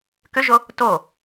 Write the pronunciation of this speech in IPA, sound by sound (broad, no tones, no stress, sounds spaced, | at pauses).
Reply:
k ʏ ʒ o | t o